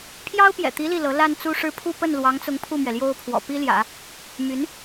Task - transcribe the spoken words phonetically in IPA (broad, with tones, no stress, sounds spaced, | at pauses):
pʰ j ɑ˥ ʊ̯ p j ɛ̰˨˩ t̪ i˧˥ l i˥˩ l ɤ˧˥ l a˥˧ n t͡s u˥˧ ʂ ɻ̩˥˧ pʰ u˥˧ p ə˥˩ n l w ɑ˧˥ ŋ t͡s ʊ˧˥ ŋ pʰ u˥˩ m ɥ ɛ˩ l j o˥ ʊ̯ pʰ w ɔ̰˨˩ p i˥ l j ä̰˨˩˦ | m y˧˥ n